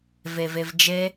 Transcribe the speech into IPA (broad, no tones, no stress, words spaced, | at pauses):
vevevd͡ʒe